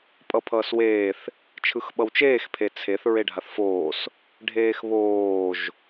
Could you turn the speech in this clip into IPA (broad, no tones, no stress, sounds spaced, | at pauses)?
pʼ ʌ pʰ ʌː s w eː θ | t͡ʃʰ ɯ x ɓ ʌ w t͡ʃ eː x pʰ e t͡sʰ e θ ɹ e ɖʱ a θ f oː s | ɖʱ eː x β oː ʒ